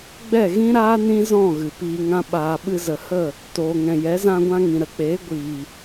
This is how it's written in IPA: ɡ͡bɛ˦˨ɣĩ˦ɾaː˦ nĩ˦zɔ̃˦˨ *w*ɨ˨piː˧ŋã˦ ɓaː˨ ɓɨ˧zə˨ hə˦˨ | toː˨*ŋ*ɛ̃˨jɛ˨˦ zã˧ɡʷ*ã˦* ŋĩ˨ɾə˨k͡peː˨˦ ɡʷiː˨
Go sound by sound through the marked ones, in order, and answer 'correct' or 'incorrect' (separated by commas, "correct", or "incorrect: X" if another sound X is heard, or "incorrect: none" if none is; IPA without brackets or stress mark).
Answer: incorrect: ɣ, correct, incorrect: ã˧